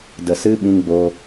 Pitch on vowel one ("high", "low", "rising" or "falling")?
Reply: low